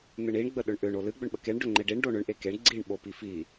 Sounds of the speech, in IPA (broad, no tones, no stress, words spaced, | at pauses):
n̪ɨɳiɳ ɡ͡bəɗʏɳʔʏɳ olɨ ɡ͡bʏɳɓəkeɳ ɖʏŋ͡ǃeɖiɳ ɖoɳʏɳ ʔekeɳ ɡ͡ǀiɳ ɓopifi